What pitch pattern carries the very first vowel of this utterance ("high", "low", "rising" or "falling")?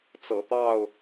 low